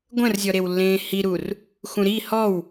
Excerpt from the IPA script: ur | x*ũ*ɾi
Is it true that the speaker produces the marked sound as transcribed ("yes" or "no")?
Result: yes